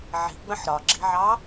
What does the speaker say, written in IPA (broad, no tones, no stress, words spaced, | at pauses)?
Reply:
ʕi̤ɡ͡bə̃ħ ɾɒɡ͡ǁi̤ʕɑ